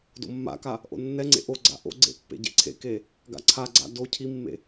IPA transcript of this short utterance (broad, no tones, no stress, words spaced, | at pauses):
do̰mːa̰ka | ʔo̰nːɛŋ͡ǀḛ ʔo ɡ͡ǀa̰ʔo̰ɡ͡ǀḛ pːḛɟḛǀʰḛke | ɡa̰ǀʰaɡ͡ǀa̰ do cʰimːḛ